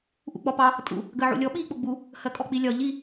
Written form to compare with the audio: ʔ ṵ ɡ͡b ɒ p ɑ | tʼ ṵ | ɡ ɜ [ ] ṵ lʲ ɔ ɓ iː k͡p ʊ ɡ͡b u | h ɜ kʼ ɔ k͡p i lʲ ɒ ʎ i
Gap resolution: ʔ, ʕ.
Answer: ʕ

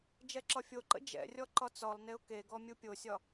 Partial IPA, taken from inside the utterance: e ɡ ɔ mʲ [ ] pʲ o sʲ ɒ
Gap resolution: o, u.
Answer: u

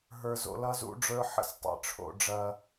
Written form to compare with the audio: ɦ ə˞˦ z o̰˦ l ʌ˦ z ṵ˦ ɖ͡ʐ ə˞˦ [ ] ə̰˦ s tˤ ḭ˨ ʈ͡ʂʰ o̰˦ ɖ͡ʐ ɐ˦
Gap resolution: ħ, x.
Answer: ħ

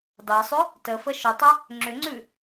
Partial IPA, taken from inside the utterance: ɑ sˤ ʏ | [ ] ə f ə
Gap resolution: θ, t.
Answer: t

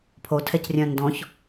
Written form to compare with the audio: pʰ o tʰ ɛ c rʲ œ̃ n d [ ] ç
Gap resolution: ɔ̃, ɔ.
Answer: ɔ̃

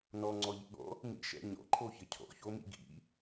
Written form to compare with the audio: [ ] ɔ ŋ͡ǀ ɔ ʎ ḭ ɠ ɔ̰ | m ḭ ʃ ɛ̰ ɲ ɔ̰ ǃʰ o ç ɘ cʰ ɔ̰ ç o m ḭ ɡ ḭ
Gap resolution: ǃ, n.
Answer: n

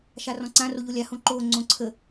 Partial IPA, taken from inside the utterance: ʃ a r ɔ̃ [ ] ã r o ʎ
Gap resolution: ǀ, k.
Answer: ǀ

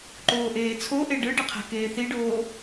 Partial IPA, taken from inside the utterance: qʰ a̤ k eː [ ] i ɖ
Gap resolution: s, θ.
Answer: θ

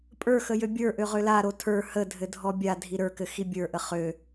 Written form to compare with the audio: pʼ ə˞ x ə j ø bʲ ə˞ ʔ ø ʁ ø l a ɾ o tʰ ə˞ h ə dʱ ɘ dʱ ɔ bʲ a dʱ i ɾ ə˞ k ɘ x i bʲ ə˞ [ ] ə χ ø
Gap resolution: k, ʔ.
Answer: ʔ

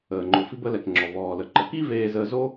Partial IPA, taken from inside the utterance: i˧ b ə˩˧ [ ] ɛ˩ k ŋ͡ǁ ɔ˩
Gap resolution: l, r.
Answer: l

